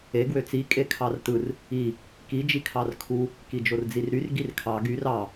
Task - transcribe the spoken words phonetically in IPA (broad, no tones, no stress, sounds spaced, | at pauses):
e ɡ w ø t͡s i kʼ e kʰ ɑ r t ɯ r | i | k i d͡ʒ i kʰ ɑ r kʰ u | k i d͡ʒ o r d͡z i r ɾ y r ɡ i r kʰ ɑ ɡ y r ɑ